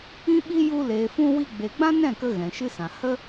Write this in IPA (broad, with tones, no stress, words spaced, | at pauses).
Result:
ĩ˦ɓi˦ ju˧ leː˨fũ˧wi˧ ɡ͡be˨ɡ͡bã˦ nɛ̃˦˨kə˧ ɣɛ̃˨ʃɨ˦sã˨ hə˦